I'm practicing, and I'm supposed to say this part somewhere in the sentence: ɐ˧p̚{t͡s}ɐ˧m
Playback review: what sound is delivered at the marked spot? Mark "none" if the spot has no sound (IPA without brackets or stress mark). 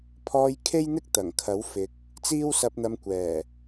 n̪